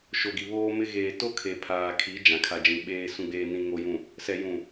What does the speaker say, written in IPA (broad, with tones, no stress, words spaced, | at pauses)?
ʃo˨ɡi˨ βoː˦mɪ˦ ɣeː˨to˦ kʰe˨pʰaː˨ kʰi˨˦ d͡ʒã˨kʰa˨d͡ʒĩ˨ ɓeː˨ sũ˨ɡ͡beː˨ nĩ˨ŋo˨jũ˨ | sɛ˨jũ˨